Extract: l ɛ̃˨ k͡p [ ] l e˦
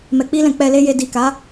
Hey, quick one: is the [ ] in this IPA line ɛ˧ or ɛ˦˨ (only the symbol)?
ɛ˧